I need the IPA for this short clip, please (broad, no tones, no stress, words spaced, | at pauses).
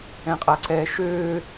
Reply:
ɛ̃qʼaǀɛːʃøː